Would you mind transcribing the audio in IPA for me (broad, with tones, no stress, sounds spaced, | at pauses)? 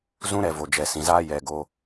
z ũ˦ ɾ ɛ˨ v o˨ d͡ʒ ɛ˨ s ĩ˨ z aː˦ j ɛ˨ ɡ o˧